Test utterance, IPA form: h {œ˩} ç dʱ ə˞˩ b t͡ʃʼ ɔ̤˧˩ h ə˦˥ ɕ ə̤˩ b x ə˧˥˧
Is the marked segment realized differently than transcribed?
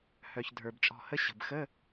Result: no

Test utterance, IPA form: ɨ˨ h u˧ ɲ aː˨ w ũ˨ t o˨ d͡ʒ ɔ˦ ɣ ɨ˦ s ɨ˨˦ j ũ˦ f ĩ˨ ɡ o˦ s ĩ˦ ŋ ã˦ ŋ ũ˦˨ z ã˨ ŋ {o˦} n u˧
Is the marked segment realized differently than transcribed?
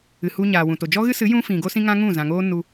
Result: yes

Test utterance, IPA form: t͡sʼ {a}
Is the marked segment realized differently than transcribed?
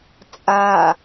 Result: no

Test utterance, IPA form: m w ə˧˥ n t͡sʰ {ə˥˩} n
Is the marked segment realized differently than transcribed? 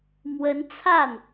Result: yes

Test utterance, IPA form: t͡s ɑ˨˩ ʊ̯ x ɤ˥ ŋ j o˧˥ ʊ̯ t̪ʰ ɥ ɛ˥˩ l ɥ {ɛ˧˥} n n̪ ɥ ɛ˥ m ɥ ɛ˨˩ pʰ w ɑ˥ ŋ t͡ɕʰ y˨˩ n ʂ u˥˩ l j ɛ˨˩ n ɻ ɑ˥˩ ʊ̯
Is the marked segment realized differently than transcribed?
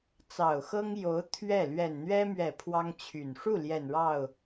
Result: yes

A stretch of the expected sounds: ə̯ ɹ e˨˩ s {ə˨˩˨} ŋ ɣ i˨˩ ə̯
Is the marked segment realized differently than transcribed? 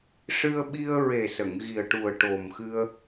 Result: no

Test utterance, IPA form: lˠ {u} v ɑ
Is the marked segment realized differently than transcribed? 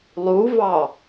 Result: no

